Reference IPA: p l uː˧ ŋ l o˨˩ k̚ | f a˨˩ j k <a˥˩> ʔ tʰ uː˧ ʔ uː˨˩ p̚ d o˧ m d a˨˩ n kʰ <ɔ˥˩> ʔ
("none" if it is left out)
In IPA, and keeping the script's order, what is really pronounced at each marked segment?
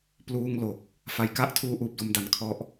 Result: a˦˥, ɔ˦˥

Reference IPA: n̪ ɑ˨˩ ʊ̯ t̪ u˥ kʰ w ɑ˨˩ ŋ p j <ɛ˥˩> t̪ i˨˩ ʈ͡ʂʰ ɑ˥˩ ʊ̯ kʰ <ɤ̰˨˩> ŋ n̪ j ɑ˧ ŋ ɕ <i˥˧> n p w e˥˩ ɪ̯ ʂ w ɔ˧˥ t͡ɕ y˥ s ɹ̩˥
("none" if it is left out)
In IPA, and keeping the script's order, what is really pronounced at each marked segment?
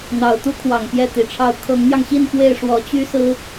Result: ɛ˥˩, ɤ˧˥, i˥˧

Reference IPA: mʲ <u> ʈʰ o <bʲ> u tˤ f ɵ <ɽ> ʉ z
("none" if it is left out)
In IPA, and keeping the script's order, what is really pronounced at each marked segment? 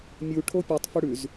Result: u, pʲ, ɽ

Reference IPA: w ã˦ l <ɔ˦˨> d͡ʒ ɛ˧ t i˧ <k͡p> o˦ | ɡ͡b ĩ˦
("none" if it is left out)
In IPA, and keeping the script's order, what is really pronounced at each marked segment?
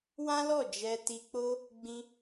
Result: ɔ˦˨, k͡p

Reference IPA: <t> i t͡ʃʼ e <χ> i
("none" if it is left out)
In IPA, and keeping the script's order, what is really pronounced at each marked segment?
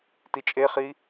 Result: t, χ

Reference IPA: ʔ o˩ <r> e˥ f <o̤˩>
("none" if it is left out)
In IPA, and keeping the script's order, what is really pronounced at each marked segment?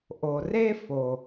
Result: r, o˩

